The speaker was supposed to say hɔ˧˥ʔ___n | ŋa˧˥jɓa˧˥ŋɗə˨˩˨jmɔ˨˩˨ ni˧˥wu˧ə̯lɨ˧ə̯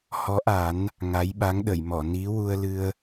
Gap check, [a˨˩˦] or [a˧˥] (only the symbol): a˨˩˦